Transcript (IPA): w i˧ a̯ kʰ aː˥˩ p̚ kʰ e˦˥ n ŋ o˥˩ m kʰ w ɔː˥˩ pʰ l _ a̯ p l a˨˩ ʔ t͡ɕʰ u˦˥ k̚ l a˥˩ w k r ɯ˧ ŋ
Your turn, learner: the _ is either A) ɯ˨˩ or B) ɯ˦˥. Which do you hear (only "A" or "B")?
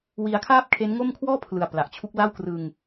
A